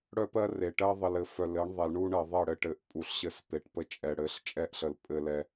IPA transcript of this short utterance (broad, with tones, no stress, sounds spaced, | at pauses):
ɽ œ˦ p ɜ˦ r e˨ ʈ ɜ˦ ðˤ ə˨ l ɘ˨ f œ˨ l ɘ˨˦ ɳ ðˤ ɛ˨ l ɳ u˦ ɳ ɜ˨ ðˤ ɜ˦˨ ɽ ɘ˦ ʈ ɘ˨ ʔ pʼ u˨ ɬ ɕ ɘ˦ s p e˨ ʈ p ə˦ t͡ʃʼ ɛ˨ ɽ ɘ˨˦ ɬ t͡ʃʼ ɛ˦ ʔ ɬ ə˨ l pʼ ɘ˨ l ɛ˨